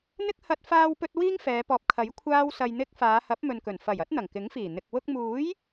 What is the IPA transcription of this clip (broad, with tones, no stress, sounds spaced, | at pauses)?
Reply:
n̪ ɪ˥ k̚ h ɐ˧ t̚ f aː˧ w p ɵ˧ t̚ w iː˥ ŋ f ɛː˨˧ p ɔː˨ p̚ kʰ ɐ˨˥ j kʷʰ aː˥ w s ɐ˧ j n̪ ɪ˥ k̚ f aː˨˧ h ɐ˨˥ p̚ m ɵ˨ n k ɵ˨˩ n f ɐ˨˩ j ɐ˥ t̚ n̪ ɐ˨˩ ŋ k ɪ˨˥ ŋ f iː˨˩ n̪ ɪ˨ k̚ w ʊ˧ k̚ m uː˨˥ j